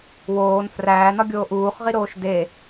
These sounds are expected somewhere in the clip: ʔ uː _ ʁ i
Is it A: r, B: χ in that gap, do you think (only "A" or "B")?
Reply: B